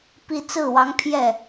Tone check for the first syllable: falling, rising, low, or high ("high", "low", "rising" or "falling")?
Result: falling